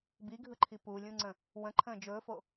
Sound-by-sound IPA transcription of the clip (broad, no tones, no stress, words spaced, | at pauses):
biɡʱɯǃʰi pulʲũŋ͡ǀə̃ | wə̃ǃʰə̃ː d͡ʒɵːfo